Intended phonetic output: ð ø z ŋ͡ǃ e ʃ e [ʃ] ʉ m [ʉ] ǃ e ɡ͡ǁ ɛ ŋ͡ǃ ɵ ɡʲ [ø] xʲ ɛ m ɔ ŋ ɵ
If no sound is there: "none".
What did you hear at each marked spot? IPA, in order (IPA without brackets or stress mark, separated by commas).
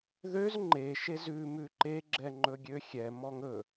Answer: z, ʉ, ø